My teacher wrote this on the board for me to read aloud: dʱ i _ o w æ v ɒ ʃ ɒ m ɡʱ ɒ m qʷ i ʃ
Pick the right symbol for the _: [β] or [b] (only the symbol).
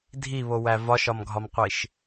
β